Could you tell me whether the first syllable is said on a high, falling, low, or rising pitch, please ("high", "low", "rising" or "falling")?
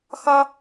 high